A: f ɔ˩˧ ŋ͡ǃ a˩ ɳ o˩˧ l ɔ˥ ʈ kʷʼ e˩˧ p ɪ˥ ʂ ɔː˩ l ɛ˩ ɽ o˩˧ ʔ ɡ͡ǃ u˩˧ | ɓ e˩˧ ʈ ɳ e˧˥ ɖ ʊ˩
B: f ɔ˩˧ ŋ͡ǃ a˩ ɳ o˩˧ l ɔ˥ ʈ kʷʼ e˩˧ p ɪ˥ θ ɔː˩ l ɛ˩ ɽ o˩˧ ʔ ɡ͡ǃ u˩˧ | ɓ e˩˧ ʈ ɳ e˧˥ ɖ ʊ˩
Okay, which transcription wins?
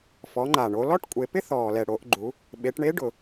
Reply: B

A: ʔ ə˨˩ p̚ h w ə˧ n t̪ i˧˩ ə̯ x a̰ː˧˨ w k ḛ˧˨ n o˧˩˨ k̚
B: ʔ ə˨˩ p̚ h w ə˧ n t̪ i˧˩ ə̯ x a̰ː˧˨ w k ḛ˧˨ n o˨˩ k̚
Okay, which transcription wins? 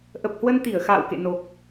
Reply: B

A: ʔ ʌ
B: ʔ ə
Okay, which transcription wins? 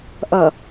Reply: A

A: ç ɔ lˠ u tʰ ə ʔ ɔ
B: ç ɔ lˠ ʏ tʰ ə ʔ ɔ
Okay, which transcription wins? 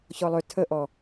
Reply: B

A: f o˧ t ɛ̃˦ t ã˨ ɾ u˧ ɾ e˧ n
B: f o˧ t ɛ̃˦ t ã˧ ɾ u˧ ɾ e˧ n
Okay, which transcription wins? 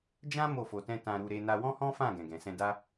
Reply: B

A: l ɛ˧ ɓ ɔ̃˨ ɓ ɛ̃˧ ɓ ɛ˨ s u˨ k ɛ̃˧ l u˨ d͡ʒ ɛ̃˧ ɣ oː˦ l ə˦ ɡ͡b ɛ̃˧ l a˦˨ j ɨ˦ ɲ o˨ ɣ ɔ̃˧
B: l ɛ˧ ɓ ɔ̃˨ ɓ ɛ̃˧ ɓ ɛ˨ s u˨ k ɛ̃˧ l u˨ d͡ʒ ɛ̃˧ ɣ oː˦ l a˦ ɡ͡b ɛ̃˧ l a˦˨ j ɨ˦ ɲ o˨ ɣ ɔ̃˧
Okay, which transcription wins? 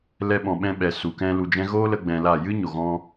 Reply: A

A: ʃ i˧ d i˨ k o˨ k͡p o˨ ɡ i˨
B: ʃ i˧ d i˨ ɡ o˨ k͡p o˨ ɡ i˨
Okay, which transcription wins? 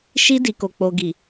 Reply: A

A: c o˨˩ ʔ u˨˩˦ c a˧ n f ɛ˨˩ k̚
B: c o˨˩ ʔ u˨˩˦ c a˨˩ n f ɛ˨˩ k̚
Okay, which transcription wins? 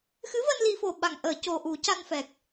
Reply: A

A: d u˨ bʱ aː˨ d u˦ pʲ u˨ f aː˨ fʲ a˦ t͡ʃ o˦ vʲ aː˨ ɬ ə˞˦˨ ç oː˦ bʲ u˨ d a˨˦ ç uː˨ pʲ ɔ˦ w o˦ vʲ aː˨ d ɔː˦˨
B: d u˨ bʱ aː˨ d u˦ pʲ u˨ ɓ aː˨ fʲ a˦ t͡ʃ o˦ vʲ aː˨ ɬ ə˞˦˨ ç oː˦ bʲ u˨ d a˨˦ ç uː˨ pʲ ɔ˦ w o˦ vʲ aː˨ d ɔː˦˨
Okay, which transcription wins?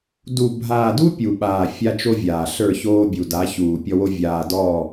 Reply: B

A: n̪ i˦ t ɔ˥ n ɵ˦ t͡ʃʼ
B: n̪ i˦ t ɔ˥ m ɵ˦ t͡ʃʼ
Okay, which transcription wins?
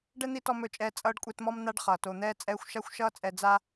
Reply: B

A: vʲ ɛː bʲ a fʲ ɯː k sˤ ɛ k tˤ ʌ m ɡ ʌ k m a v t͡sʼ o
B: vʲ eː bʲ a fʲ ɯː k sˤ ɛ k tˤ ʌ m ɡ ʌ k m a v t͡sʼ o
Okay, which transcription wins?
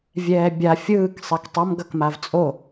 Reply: A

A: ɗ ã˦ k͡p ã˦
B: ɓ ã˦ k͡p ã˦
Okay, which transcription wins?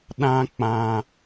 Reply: A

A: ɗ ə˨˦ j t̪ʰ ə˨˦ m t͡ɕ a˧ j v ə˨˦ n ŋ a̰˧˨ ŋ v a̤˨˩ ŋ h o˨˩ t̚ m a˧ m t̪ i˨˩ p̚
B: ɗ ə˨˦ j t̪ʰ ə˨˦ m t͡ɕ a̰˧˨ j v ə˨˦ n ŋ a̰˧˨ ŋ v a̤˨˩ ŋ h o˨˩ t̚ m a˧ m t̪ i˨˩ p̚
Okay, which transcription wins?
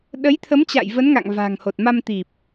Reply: B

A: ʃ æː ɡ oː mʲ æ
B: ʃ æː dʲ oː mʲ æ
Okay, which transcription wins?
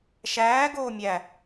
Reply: A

